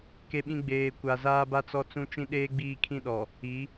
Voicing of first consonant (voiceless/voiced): voiceless